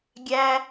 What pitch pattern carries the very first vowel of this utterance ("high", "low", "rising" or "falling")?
high